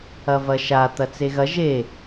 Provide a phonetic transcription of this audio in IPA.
ɐ v ɐ ʃ a t̪ ɐ t͡s e ɣ ɐ ʒ e

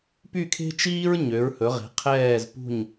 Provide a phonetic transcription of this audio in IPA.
p y˥˩ kʰ e̤˥ t͡ʃ iː˥ ɹ ɲ ø˩˥ ɹ h ɵ˩˥ ʁ e̤˩˥ qʰ ɛː˥˩ z p ṳ˥˩ ɲ

